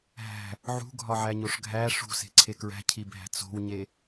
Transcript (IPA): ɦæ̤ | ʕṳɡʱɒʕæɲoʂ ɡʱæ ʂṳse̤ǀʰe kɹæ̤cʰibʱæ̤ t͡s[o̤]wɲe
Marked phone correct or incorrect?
correct